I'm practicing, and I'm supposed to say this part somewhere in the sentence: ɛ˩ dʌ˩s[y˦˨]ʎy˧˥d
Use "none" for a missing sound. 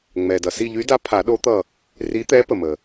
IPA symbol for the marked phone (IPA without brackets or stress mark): i˦˨